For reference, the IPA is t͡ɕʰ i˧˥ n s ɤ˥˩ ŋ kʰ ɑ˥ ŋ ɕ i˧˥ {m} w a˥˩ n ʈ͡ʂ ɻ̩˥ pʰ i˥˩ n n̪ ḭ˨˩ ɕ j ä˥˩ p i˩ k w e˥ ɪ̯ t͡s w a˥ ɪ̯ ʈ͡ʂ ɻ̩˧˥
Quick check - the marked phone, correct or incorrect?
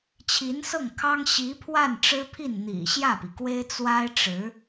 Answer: incorrect